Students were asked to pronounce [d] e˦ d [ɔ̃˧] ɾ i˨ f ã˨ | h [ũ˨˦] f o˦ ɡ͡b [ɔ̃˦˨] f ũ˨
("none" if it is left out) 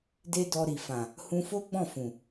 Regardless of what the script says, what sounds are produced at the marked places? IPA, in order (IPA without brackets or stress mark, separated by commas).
d, ɔ˧, ũ˧, ɔ̃˦˨